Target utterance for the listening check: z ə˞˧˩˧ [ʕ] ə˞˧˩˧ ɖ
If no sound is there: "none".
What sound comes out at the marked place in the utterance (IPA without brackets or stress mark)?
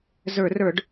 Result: r